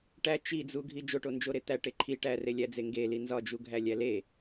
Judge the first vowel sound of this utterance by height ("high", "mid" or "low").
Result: low